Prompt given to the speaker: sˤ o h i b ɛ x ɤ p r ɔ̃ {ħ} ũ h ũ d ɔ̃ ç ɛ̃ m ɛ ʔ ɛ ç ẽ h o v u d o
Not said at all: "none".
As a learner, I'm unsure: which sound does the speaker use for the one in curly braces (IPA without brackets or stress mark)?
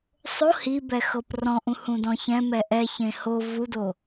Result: ʔ